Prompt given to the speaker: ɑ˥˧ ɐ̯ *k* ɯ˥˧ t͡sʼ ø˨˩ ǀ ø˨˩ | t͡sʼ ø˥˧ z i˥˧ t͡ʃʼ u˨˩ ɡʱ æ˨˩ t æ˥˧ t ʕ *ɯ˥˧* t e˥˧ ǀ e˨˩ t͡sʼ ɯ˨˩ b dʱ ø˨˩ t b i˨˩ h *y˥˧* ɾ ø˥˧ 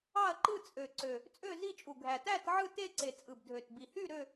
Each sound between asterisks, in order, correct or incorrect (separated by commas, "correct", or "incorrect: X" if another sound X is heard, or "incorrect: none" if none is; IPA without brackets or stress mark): incorrect: ǃ, correct, correct